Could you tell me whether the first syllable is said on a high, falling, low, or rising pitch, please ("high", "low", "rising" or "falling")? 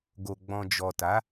low